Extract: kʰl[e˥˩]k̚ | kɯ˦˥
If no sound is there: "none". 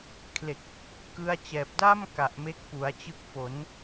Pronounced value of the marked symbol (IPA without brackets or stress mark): e˨˩